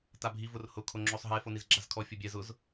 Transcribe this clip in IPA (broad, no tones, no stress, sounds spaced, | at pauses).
t a bʱ i v ʊ r h ʊ kʰ o ŋ͡ǁ o sˤ ɦ e f o n i z ɡ͡ǁ a z kʰ ɔ fʲ o bʲ ɛ z ʊ z